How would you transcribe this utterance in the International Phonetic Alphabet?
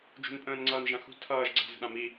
d͡ʒ ṳ n pʼ ə̃ː n ŋ͡ǀ ʌː n ʒ ã x ṳ tʰ ʌː ʒ ɡ͡ǀ a̤ z ə̤ ɗ ã m i

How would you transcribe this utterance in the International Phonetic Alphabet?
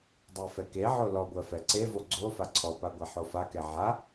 dˤ ɜ f ɛ k e ʕ o l ɔ ɡʷ ɜ f ɛ ǀ e v o ɡ͡ǀ o f a ǀʰ ɔ p a ɡʷ a ħ o f a k ɛ ʕ a

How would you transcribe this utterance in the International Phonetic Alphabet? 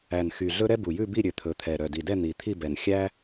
æ˨˩ n x y˨˩ ɮ ɵ˥ ɾ ɛ˥ b u˨˩ j ʉ˥˧ b i˥˧ ɾʲ ø˨˩ t̪ʰ ɵ˨˩ t̪ʰ ɛ˨˩ ɾ œ˨˩ d i˨˩ d ɛ˥˧ n̪ i˨˩ t̪ʰ i˥˧ b ɛ˨˩ n xʲ æ˥

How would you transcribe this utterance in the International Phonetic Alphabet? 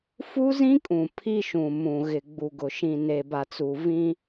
f u˦ z ĩ˦ kʼ ũ˨ pʰ i˦ ʃ ũ˨ m ũ˨ ɣ ɪ˨ ɡ͡b u˨ ɡ ʊ˨ ʃ ĩ˨ n e˨ b a˨ t͡s u˨ v ĩ˦

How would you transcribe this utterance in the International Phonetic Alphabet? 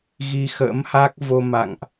ɣ i˧ x ə̰ː˧˥ m h a˦˥ k̚ v o˧ m a̰˧˨ ŋ ʔ

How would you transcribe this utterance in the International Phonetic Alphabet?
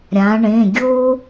ɾʲ ã˩˧ ɳ ẽ˩˧˩ ɡʲ o˦

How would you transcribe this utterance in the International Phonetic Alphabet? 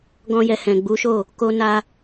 ɡ ɔ̃˧ j ɛ˨ h ɛ̃˨ ɡ͡b u˨˦ ʃ o˦˨ | k o˧ n a˧

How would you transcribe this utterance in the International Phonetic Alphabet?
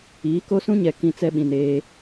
iː˨˦ k o˦ s ũ˦ ɲ ɛ˨ k ĩ˦ t͡s ɛ˦ ɓ ĩ˨ n eː˦

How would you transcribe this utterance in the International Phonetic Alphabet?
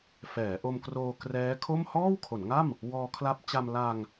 f ɛː˩˦ ʔ o˧ m k r oː˧ k r ɛː˦˥ kʰ o˥˩ m h ɔː˥˩ w kʰ o˩˦ n ŋ a˥˩ m | w ɔː˧ kʰ l a˦˥ p̚ t͡ɕ a˧ m l a˧ ŋ

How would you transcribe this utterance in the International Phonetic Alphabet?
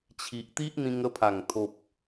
t͡ɕʰ i˨ ʔ t̪ i˦ ʔ n̪ ĩ˧ ŋ ə˧ pʰ a˨˩ ŋ t̪ʰ o˨ p̚

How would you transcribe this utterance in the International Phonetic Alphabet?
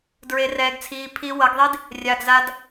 d ɹ e˧ r ɛː˧ ɡ t͡sʰ iː˧ pʰ i˧ w ʌ˨˦ ɡ ðˤ i˦ d | rʲ a˨ ɡ z a˧ d

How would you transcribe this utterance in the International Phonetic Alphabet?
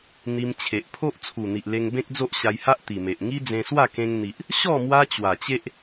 n̪ i˧ m t͡ɕʰ e˨ ʔ pʰ o˦ ʔ t͡sʰ u˨˩ n̪ i˨ ʔ l e˧ ŋ b ẽ˦ k̚ d͡z o˦ ʔ ɕ a˧ j h a˦ ʔ t̪ i˨˩ m e˨ ʔ ŋ i˦ d͡z ẽ˧ s w a˥˧ k ẽ˧ ŋ n̪ i˨ ʔ | ɕ ɔ˥˧ m w a˦ t͡ɕ w a˨˩ t͡ɕ e˦ ʔ

